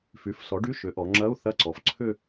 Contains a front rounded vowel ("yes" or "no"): yes